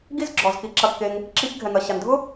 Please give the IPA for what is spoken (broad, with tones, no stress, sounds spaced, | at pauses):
ɡ i˦ z ɡ͡ǁ ɔ˨ z k i˨˦ ǁ ɐ˧ kː e˧ ŋ | ǁ i˧ ç ɡʱ ɛ˨ ŋ ɐ˨ ɕ a˨ n dʱ ʊ˦